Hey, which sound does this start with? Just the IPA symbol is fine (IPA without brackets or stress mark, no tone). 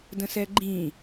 d